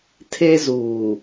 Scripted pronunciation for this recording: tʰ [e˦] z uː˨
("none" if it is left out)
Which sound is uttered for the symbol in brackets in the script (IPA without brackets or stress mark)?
e˦